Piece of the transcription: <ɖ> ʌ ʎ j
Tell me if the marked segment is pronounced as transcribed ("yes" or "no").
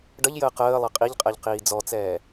yes